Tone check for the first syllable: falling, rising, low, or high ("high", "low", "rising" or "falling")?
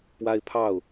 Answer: high